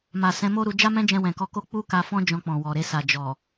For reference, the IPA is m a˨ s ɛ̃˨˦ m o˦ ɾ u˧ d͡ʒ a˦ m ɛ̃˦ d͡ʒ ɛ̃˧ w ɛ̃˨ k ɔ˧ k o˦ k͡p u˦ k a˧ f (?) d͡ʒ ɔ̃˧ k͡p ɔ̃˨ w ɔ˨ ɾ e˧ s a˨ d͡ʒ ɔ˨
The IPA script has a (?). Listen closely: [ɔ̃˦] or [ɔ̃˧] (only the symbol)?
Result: ɔ̃˦